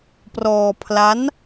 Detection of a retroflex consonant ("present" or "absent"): absent